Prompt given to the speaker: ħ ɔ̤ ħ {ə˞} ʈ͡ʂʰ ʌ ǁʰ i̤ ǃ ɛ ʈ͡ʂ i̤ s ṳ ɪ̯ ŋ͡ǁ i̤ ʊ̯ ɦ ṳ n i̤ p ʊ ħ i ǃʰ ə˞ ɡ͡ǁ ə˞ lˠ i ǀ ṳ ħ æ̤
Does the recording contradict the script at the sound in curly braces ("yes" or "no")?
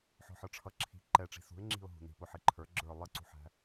no